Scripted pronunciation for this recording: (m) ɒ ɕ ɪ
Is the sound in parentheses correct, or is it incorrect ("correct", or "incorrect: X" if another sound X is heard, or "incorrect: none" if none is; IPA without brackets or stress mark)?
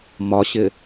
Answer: correct